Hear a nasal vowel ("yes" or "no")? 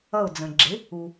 yes